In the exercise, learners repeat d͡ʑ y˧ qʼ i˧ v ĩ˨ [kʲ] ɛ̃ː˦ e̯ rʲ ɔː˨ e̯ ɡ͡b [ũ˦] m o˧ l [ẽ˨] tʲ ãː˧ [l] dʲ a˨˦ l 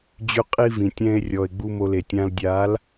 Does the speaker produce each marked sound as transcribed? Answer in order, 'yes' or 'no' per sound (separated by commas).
no, no, no, yes